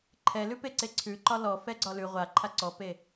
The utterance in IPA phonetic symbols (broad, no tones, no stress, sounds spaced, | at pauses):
ǃʰ ɛ l ʉ p e ǀ e ǀʰ ʉ ǃ ɒ l ɔ f ɛ ɡ͡ǀ ɒ l ʉ ʁʷ a ǃʰ a ǀ ɔ p e